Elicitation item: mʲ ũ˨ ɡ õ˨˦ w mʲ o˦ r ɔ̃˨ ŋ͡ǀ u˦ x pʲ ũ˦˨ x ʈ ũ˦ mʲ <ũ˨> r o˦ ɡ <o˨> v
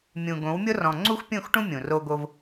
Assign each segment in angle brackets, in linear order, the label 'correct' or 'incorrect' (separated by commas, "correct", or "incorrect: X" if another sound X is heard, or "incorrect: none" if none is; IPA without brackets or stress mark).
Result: correct, incorrect: o˦